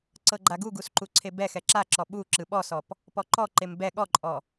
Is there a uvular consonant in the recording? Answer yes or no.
no